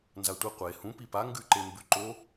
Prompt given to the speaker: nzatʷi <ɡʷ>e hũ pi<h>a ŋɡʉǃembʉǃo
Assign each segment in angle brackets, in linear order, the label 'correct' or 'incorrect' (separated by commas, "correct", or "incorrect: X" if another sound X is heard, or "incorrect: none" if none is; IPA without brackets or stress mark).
incorrect: qʷ, incorrect: p